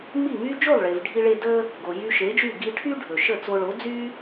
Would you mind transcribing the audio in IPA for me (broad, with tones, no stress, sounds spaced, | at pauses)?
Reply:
m i˥˩ ŋ y˥ d͡ʒ o˥˩ lˠ ɭ e˩ v ɖʱ i˧ ɭ e˧ d ə˥ | ɡ o˩ j y˧ ʃ e˩˥ d͡ʒ y˥˩ ɡ i˧ ʈʰ y˥ ɖʱ ɵ˩ ʃ ə˥˩ t͡s o˧ ɭ o˩˥ d͡z y˥